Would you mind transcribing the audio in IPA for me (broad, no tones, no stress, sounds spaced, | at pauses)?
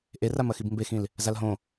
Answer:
ʔ e r a m ɐ x i b m b e x ĩ l | z a l ɦ õ